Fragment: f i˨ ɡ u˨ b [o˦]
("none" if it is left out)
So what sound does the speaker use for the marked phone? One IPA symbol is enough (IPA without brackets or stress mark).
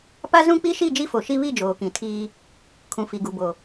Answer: o˨